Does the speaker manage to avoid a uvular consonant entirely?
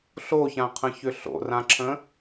no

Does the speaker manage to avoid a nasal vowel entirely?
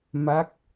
yes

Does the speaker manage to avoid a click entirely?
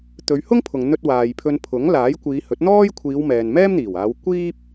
yes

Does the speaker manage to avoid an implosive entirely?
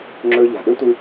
no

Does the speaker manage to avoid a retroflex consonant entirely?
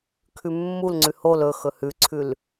yes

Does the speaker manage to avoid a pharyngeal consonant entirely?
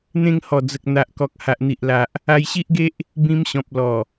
yes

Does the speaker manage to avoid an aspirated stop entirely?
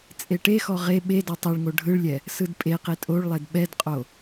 yes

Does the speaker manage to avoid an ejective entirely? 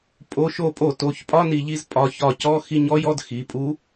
no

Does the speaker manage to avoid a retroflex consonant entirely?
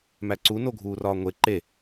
yes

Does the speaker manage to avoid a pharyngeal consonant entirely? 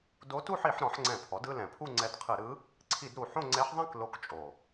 no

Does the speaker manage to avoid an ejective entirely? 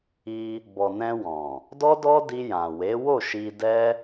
yes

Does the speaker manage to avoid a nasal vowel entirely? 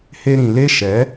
no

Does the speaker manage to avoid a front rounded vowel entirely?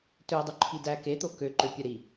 no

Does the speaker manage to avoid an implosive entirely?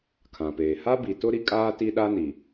no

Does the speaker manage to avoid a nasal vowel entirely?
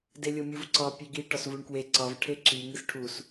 yes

